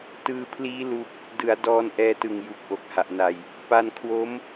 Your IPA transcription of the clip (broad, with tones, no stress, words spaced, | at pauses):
tɯː˧pʰliː˦˥ lu˥˩k̚ | dɯ˩˦a̯ dɔː˧nʔɛː˧tɯ˨˩ŋ ju˨˩k̚ʔo˨˩k̚ha˨˩ʔna˧j | pa˧nkʰwo˦˥m